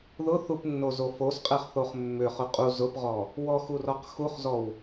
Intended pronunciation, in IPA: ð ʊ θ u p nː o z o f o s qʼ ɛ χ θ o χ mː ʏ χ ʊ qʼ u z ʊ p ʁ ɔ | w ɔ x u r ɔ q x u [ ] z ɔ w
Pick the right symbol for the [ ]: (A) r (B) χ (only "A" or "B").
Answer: B